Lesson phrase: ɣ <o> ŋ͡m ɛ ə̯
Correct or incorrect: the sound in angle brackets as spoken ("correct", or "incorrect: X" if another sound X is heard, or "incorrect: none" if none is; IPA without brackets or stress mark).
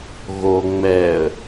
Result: correct